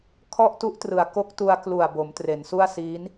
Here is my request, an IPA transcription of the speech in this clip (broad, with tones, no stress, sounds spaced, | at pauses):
kʰ ɔ˥˩ ʔ t u˦˥ ʔ t r ɯ˩˦ a̯ k o˦˥ k̚ t u˧ a̯ k l u˨˩ a̯ b o˩˦ m t r e˩˦ n s u˥˩ a̯ s iː˦˥ n